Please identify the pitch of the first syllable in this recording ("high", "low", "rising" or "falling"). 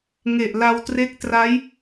low